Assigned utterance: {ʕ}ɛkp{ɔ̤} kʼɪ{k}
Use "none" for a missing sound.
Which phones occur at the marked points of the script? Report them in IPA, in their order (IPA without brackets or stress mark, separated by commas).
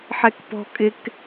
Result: ħ, ɔ̤, k